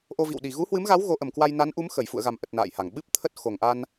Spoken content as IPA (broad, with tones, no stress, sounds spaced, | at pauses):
ʔ o˧ v ḭ˧˨ w ɗ i˨˩ ɣ u˨˦ h w ɨ˨˦ m ɣ a˨˦ w ɣ o˨˦ ʔ ə˨˩ m k w a˧ j n a˨˦ n ʔ u˨˦ m x ə˧˩ j f ṵ˧˨ ə̯ ɣ a˨˩ m ʔ ə˨˩ t̚ n a̰ː˧˨ j h a˨˩ ŋ ɓ ɨ˦˥ p̚ t̪ʰ ə˦˥ t̚ x o˨˩ ŋ ʔ a˧ n